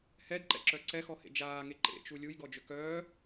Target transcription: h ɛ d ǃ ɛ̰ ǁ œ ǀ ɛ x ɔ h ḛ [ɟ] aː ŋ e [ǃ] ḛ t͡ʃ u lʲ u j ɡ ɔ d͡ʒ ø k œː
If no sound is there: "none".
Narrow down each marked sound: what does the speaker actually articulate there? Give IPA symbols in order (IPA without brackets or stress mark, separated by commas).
d͡ʒ, ǃ